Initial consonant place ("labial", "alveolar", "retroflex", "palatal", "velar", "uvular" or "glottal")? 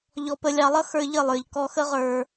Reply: palatal